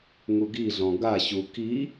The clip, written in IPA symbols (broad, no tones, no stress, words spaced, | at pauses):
ŋuɡiɮɔ̃ ɡaɕu ki